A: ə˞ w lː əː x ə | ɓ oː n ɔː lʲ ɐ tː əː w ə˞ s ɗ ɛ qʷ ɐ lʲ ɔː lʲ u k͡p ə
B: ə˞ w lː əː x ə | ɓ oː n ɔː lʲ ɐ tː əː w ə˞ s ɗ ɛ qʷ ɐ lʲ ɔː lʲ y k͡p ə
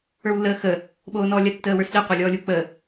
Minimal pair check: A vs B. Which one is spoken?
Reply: A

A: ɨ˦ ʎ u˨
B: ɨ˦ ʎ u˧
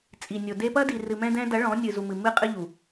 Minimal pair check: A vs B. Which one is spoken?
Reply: A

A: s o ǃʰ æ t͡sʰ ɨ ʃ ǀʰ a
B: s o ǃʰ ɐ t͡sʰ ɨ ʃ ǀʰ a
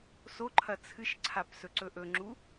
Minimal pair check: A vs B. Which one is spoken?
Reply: B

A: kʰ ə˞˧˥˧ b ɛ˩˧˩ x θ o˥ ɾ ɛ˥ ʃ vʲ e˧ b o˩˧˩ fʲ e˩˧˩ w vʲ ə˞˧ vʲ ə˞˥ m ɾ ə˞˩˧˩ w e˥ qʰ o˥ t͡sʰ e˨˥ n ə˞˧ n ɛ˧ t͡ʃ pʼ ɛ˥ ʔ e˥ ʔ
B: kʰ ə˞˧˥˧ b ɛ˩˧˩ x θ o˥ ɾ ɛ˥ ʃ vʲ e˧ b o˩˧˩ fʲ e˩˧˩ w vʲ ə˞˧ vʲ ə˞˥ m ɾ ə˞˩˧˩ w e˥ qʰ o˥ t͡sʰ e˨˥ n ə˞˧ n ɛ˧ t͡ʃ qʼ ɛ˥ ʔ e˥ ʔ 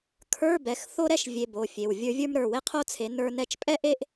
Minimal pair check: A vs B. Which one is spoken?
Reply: A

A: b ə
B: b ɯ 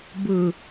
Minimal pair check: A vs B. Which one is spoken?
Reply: B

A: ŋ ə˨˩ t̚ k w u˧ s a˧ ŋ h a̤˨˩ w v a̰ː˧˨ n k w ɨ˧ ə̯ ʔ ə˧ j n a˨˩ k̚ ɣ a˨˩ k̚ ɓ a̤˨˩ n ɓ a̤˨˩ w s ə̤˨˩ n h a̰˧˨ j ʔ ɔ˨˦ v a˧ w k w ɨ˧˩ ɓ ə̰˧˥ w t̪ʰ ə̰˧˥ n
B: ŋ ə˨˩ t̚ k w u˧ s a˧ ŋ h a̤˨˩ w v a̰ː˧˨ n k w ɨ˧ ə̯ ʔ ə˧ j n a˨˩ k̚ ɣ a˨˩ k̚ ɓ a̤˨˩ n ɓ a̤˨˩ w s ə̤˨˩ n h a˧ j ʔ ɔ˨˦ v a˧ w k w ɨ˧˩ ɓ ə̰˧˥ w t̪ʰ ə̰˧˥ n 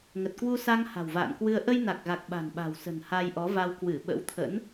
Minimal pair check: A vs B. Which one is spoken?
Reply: B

